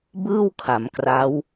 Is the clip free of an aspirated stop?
no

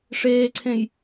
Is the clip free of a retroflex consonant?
no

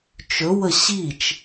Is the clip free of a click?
yes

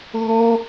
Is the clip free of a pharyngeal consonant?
yes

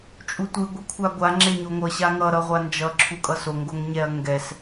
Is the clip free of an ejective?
no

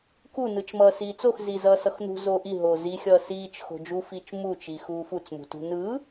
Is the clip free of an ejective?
yes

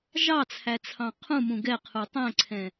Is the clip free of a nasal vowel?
no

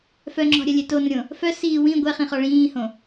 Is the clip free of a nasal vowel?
no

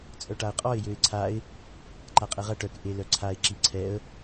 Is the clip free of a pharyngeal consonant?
yes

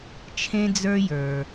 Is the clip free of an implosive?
yes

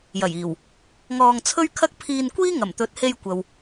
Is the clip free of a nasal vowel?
yes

